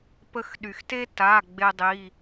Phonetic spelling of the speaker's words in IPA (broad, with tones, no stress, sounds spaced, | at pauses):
p ə˧ x ɗ y˩ x t e˥ t a˩˧˩ ɡ͡b e˧ dˤ i˩˧˩